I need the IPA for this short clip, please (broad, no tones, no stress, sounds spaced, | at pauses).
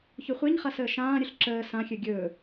ç ɵ χʷ e ɲ χ a s əː ʃ ãː ɾʲ ɵ ɬ ǁ əː s ã xʲ ɵ ɡʲ ɵː